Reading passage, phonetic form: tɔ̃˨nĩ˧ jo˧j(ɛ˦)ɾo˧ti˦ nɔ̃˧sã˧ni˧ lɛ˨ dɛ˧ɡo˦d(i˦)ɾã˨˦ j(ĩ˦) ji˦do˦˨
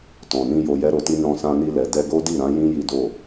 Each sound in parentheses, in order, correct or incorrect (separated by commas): correct, incorrect, correct